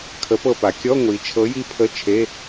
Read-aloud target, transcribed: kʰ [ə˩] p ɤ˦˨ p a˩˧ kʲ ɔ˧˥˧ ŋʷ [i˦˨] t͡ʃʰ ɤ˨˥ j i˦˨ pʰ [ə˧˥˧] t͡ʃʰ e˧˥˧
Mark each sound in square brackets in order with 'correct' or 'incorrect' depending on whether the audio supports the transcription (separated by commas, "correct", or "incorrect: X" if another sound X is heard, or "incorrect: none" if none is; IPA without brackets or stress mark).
incorrect: ə˨˥, incorrect: i˩˧, correct